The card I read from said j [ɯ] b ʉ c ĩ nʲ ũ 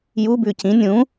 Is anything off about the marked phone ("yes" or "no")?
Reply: yes